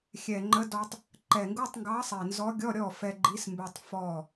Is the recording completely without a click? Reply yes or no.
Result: no